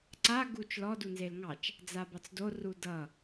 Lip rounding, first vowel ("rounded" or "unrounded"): unrounded